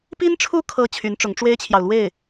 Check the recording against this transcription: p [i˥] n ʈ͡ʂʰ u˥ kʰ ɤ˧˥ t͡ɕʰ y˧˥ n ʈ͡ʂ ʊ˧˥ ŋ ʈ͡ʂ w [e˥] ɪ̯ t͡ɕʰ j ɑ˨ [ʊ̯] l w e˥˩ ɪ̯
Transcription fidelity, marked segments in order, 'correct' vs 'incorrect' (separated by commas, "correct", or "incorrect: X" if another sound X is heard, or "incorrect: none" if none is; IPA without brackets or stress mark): correct, correct, correct